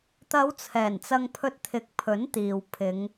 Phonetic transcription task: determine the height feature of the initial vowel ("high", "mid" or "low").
low